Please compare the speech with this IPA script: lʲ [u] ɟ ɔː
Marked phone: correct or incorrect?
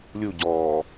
correct